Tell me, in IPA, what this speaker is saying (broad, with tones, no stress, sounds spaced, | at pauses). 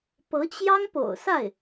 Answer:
p ɤ˧˥ t͡ɕ j ɑ˥ ŋ p o̰˨˩ ʊ̯ s a˥˩ ɪ̯